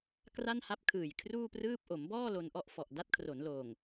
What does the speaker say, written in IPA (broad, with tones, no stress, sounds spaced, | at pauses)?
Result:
k r a˥˩ n h a˦˥ p̚ kʰ ɯː˨˩ j kʰ r uː˥˩ p r ɯː˥˩ p̚ ʔ o˩˦ m b ɔː˥˩ l o˧ n ʔ ɔ˥˩ ʔ f ɔ˨˩ ʔ d a˦˥ t̚ kʰ r o˩˦ n l oː˨˩ ŋ